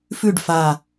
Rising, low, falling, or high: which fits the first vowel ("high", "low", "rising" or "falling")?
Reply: falling